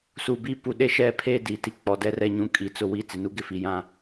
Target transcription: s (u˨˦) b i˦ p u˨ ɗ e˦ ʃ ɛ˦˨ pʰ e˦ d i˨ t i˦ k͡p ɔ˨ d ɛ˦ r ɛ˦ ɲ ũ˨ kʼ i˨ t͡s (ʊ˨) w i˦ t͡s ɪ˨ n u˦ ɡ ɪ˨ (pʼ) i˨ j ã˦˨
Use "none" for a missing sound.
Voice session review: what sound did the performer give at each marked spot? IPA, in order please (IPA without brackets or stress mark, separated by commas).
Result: u˨, ʊ˨, f